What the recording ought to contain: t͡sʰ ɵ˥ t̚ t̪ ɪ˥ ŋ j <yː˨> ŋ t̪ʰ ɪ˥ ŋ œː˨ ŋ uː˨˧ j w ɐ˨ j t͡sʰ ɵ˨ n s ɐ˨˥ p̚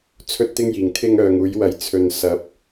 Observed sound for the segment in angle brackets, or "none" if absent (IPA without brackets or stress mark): iː˨